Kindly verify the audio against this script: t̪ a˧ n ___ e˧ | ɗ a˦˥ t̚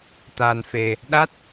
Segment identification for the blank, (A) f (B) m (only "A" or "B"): A